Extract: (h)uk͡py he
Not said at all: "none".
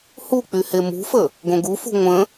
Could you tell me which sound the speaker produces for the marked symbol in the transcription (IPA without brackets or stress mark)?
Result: h